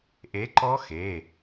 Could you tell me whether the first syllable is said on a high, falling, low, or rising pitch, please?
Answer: rising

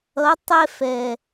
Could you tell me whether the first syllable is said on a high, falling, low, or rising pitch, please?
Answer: rising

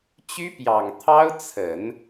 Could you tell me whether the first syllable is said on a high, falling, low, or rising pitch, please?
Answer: high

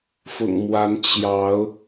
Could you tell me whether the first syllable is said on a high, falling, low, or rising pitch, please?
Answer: low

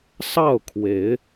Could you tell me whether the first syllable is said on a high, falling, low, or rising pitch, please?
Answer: falling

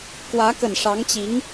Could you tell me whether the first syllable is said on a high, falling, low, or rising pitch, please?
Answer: rising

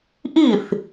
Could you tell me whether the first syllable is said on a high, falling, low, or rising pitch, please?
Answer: falling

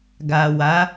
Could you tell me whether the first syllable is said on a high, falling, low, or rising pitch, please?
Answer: low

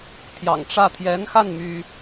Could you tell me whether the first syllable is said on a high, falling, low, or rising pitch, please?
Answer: low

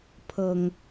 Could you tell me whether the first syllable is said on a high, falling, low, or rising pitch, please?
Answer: low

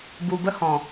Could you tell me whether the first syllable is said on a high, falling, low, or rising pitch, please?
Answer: low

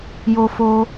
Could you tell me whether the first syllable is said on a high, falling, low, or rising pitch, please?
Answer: high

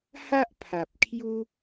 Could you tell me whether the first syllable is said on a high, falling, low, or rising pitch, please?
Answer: high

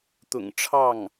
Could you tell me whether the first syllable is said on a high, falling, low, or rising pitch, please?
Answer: low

